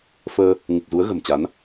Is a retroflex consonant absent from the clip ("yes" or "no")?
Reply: yes